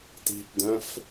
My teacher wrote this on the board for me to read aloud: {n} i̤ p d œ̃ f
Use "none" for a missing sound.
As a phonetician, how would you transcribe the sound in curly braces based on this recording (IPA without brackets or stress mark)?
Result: t